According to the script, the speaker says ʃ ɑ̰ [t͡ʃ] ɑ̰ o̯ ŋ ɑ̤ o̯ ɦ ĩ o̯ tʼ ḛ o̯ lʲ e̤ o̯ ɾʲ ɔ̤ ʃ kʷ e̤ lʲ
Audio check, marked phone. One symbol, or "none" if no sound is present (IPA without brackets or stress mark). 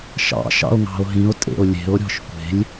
ʃ